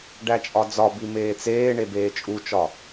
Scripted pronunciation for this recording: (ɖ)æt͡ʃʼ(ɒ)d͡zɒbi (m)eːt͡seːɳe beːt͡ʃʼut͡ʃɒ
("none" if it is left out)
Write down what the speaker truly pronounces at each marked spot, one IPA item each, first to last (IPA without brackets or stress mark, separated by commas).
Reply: ɖ, ɒ, m